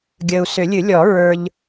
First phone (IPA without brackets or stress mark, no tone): ɡʲ